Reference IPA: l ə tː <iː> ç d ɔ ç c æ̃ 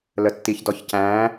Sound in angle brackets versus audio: incorrect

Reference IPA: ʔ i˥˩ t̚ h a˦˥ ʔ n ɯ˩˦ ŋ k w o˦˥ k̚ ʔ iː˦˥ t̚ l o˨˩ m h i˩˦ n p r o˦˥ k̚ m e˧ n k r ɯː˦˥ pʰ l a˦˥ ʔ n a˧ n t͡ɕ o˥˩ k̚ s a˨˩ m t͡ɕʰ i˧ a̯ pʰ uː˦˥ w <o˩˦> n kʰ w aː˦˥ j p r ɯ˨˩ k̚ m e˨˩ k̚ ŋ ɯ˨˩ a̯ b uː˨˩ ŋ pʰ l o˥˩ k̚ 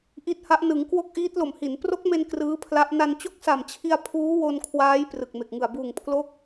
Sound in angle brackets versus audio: incorrect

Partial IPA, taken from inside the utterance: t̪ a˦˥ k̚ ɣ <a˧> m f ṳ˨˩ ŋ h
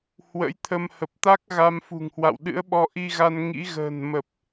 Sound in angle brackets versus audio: correct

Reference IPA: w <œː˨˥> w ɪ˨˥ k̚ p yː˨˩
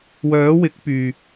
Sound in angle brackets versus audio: correct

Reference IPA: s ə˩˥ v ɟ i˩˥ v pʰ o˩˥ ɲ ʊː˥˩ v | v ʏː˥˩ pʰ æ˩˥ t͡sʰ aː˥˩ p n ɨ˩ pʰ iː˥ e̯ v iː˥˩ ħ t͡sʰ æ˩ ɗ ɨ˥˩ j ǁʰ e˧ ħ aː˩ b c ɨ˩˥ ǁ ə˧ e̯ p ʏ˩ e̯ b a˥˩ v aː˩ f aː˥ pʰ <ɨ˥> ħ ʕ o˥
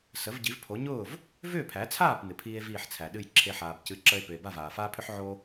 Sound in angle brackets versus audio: incorrect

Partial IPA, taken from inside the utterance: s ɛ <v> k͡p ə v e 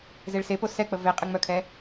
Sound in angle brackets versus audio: incorrect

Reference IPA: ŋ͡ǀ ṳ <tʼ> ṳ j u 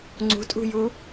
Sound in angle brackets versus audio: correct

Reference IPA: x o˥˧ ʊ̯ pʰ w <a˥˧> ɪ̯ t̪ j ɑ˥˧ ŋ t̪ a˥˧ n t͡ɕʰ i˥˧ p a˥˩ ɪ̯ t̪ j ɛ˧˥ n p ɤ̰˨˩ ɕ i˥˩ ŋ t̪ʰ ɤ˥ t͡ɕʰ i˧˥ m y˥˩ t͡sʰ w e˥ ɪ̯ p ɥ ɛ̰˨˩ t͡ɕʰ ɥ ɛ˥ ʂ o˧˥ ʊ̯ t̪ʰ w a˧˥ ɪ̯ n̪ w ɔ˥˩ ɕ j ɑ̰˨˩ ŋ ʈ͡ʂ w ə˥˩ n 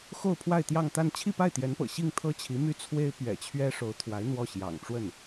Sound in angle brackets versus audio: correct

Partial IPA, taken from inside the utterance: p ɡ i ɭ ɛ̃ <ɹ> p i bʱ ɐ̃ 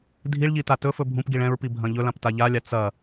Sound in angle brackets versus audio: correct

